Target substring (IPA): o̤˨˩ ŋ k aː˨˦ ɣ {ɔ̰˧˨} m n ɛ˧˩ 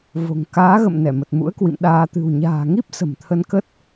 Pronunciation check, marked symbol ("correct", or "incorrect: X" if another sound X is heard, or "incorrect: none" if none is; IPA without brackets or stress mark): incorrect: ə̰˧˨